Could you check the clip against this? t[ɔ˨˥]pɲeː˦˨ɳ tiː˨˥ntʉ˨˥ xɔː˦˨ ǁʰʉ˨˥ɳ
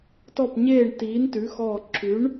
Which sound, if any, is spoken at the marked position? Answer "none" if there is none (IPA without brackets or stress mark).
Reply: ɔ˦˨